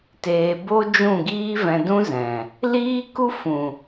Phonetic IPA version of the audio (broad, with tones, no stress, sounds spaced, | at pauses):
t eː˧ b o˦ d͡ʒ ũ˦˨ ɡ iː˦ v ɛ̃˧ d ũ˦ z ɛ̃˨ | l iː˦ k u˦ f ũ˨